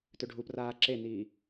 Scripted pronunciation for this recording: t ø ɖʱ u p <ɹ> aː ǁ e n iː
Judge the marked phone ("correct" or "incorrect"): incorrect